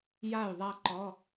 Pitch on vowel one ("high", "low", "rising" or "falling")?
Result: falling